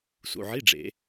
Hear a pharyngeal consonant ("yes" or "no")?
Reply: yes